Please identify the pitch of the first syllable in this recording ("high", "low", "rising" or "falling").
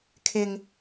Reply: low